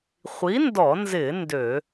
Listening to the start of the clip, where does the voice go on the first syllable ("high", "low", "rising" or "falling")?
rising